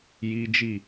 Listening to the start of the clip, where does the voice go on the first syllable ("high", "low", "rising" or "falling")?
high